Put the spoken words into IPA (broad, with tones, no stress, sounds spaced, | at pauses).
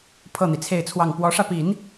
pʰ ɤ˥˩ n̪ i˩ t͡sʰ e˥˧ ɪ̯ t͡sʰ w ɑ˥˩ ŋ p w ɔ˧˥ ʂ ä˧ p i˨˩˦ n